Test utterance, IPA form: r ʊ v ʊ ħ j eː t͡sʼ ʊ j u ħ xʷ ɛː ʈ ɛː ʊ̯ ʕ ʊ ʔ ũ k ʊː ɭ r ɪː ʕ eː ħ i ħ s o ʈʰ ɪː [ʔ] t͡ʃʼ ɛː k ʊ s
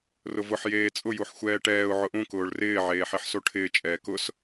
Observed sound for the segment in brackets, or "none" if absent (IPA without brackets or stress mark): none